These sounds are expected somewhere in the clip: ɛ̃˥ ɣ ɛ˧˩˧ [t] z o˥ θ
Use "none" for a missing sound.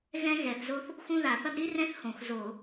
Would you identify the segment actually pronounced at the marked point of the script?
θ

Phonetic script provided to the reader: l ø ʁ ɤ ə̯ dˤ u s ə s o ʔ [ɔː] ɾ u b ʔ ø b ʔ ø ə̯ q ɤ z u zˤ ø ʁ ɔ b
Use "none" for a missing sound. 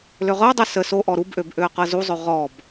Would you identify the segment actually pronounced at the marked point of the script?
ɔ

